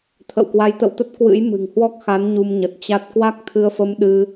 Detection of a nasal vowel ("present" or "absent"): absent